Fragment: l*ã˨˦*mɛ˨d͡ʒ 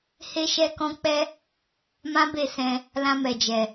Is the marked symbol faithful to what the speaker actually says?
no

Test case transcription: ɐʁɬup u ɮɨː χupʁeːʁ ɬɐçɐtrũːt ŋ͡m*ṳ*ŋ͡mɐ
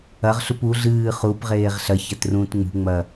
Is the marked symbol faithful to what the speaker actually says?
yes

